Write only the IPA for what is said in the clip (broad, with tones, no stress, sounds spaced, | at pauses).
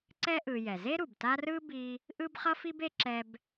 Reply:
ǀ ɛ˥ ʔ ɯ˨ j ɛ˩ z e˥ ɾ u˩ b t a˦ r ɯ˥ b i˦ | ʔ ɯ˥ b χ ʌ˥ f i˥ b e˦ ǁ ɛ˦ b